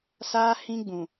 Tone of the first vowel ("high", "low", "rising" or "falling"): high